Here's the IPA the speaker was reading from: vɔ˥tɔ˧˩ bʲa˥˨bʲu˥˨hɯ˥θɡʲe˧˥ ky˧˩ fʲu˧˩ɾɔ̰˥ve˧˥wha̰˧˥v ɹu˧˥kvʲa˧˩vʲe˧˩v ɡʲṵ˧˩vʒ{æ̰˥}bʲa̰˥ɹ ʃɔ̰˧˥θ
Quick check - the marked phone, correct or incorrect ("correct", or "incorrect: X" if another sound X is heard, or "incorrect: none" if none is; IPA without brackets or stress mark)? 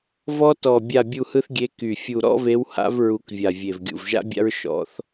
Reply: incorrect: a̰˥